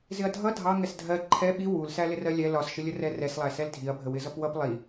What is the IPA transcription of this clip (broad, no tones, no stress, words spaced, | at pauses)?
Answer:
zɪɐ̯dʱʌ dʱɑ ŋɛsdʱɜ ǃʰɛ ɓi wul sælɪrɜlʲɛ lɒsʃɪlʲə rɛrɛslˠæ sɛldʱiɐ̯bʱə wɪzʌpwʌp lˠi